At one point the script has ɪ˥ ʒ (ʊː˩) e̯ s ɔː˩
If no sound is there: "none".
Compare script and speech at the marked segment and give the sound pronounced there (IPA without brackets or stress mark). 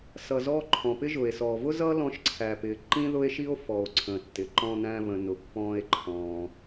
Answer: ʊː˩